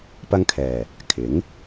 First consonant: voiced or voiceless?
voiceless